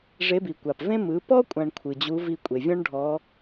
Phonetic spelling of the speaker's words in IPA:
ʐ e˧˥ b i˩ kʷ a˩ p v ẽ˥ m ɯ˩˧ p ɔ˥ kʷʼ ã˧ ɳ kʷʰ ɯ˩ d͡ʑ u˧˥ v i˧ kʷʼ e˩ vʲ ɔ̃˥ ɳ ɖʱ ɔ˧˥

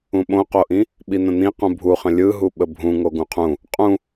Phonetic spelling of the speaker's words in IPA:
ũ ɓ õ q o ʔ ĩ | ɓ i n̪ ə̃ n̪ ĩ q ũ bʱ u χ ə̃ lʲ ɯ ɦ u ɓ ə bʱ ũ ŋ o ɡ ũ qʰ ũ | qʼ ũ

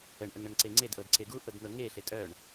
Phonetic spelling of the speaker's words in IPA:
ə ɳ ʔ ə ŋ ɳ ə ŋ ǀ e ŋ͡ǀ e d ʔ ɤ d ǀ e ɡ u ʔ ɤ d n̪ ɤ ŋ e ɬ e tʼ œ ɳ

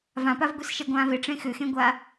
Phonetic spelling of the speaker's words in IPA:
v ã p a v ɡʷ i s ʃ ɛ ɡʷ ãː v e ʈ͡ʂ ẽ x ʏ x ẽ ɡʷ a

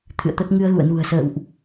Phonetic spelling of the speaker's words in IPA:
t̪ʰ ɨ̰˧˨ ə̯ t̪ ə˦˥ t̚ ŋ ɨ˧ ə̯ ɣ ṵ˧˨ ə̯ n ṳ˨˩ ə̯ s ə̰ː˧˨ w ʔ

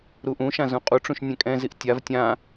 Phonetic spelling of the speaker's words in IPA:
ɾ u ʔ ũ ʃ ã z ũ qʼ u ʈ͡ʂ ũ ʃ nʲ ɛ̃ kʼ ɛ̃ z i ʔ tʲ a v tʲ ã

